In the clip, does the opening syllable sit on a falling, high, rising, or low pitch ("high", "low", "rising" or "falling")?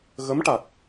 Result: rising